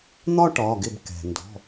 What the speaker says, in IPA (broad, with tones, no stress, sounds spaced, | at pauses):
n̪ ɒ˥ ʈ ɒ˩˧˩ ɡ ɪ˧˩ b k ɛ̤˩ n d ɔ̤˩˧˩